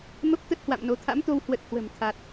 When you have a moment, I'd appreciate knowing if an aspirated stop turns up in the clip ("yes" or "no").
yes